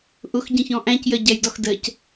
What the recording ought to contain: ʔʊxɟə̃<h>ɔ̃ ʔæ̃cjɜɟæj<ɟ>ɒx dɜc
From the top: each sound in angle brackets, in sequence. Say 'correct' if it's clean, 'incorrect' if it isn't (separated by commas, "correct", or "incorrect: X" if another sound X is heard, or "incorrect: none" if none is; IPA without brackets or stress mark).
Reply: incorrect: ç, incorrect: d